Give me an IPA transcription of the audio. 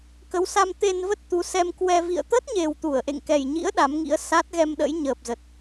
k ə˨˦ w s a˧ m t̪ e˧ n v ə˦˥ t̚ t̪ u˨˦ s ɛ˧ m k w ɛ˧ v ḭ˧˨ ə̯ t̪ ə˦˥ t̚ ɲ e˨˩ w t̪ u˧˩ ə̯ ʔ ḛ˧˨ ŋ k ɛ˨˩ j ɲ ḭ˧˥ ə̯ ɗ a˨˦ m ŋ ḭ˧˥ ə̯ s a˦˥ t̚ ɣ ɛ˧ m ɗ ə̰˧˥ j ɲ əː˨˩ p̚ z ə˨˩ t̚

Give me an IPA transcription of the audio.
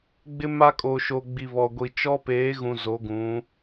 ɡ͡b ɪ˦ m a˦ kʼ o˨ ʃ o˨ ɡ͡b i˨ β ɔ˨ ɡʷ i˨ t͡ʃ ɔ˦ p eː˨˦ ɣ ũ˨ z o˨˦ ɡ ũ˨˦

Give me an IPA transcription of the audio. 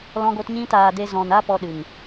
l ɔ̃˧ ɡ o˧ t ɲ ĩ˧ t aː˨ d e˧ z ɔ̃˨ n a˦ p ɔ˧ ɗ ɨ˨ ŋ

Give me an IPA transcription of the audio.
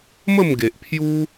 m ə˥˧ m ɡ e˨ ʔ pʰ j u˦

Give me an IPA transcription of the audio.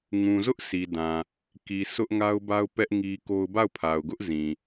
ŋ ũ˨ z ʊ˦ ʔ s i˨ d ã˨ | k i˨ sʰ ʊ˦ ʔ ŋ a˦ ʊ̯ b a˦ ʊ̯ p ɛ˦ ʔ ŋ i˦ k o˦ ʊ̯ b a˦˨ ʊ̯ pʰ a˨ ʊ̯ ɡ ʊ˦ ʔ z ĩ˨

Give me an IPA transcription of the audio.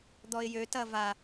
d̪ ɔ ɪ̯ j ø t ɐ v a

